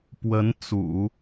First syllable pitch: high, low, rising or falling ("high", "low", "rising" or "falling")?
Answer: rising